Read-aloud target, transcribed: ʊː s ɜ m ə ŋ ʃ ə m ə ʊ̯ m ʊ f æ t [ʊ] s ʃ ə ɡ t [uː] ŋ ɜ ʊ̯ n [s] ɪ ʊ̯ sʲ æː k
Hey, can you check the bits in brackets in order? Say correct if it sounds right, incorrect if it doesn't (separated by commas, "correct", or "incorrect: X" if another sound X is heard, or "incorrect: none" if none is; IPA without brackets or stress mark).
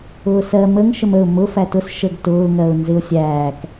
correct, incorrect: ʊː, incorrect: z